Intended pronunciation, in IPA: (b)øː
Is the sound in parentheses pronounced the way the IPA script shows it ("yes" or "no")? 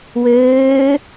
no